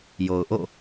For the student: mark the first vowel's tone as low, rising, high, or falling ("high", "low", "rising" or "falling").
low